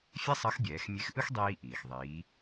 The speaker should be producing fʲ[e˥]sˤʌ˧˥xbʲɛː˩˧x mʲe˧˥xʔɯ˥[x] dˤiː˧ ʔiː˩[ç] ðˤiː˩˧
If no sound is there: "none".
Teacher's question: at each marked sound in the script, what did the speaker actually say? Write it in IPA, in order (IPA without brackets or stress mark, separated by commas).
e˥, x, x